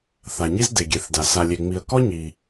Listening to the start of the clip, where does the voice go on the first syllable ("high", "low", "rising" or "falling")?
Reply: low